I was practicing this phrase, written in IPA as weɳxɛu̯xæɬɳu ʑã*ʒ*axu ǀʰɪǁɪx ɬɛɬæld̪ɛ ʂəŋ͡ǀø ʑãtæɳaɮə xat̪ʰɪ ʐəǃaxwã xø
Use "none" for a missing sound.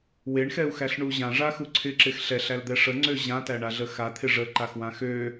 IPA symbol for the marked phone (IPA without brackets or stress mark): ʐ